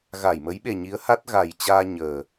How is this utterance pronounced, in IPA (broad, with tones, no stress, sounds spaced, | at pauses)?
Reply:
ɣ a˧˩ j m ə˨˦ j ɓ e˨˩ ɲ i˨˦ ə̯ h a˦˥ t̚ ɣ a˨˩ j t͡ɕ aː˧ ɲ əː˨˩